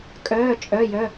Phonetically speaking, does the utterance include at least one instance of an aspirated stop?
no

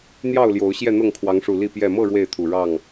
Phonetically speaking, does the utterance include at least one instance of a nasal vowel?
no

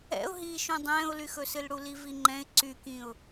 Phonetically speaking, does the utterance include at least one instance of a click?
yes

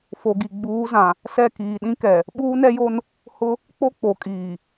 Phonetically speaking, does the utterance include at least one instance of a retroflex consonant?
no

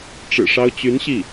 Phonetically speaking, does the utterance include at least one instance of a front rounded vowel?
yes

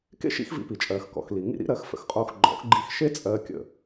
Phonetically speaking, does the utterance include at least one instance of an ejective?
yes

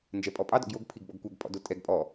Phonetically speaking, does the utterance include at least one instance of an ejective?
yes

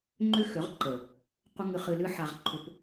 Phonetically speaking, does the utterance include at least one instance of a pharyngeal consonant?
yes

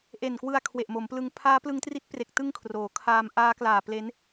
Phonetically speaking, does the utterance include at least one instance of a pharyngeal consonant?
no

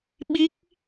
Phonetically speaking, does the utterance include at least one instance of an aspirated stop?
no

